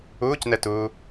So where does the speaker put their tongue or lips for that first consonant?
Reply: palate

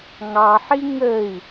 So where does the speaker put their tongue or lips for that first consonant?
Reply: velum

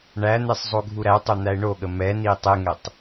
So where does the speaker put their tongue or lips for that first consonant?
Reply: retroflex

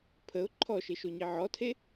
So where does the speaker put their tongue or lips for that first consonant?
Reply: lips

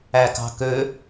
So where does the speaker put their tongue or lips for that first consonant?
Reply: velum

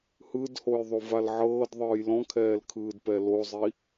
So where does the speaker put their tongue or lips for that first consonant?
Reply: throat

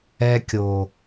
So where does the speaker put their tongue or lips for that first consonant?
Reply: velum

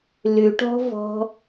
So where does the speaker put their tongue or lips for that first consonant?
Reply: tongue tip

